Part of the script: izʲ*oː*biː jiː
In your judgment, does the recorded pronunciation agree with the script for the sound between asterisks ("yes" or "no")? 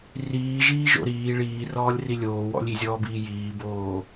no